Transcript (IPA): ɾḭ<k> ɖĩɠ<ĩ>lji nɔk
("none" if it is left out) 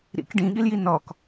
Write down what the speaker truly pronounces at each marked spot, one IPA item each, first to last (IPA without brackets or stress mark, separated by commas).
k, i